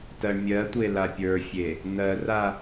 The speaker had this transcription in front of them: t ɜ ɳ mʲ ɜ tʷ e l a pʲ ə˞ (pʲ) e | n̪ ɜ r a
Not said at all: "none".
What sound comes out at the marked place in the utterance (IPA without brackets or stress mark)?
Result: fʲ